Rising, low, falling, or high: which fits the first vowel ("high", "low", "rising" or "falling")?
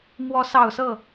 rising